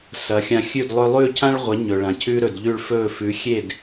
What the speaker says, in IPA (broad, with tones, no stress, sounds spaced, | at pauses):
s ɐ˩˥ xʲ ã˧ xʲ ʉ˥˩ d lˠ ɵ˧ lˠ ʉː˥˩ cʰ ã˥ ɭ ʁʷ ɐ˩˥ ɲ ɵ˩ ɭ ã˩ cʰ ʉ˧ ɾ ɵ˩ d ʎ ʉ˥˩ ɭ f ɵː˥˩ f ʉ˩˥ xʲ e˥˩ d